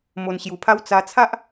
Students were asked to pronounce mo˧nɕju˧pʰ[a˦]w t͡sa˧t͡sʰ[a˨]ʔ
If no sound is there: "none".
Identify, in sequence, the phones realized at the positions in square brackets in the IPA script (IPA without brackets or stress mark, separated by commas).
a˦, a˦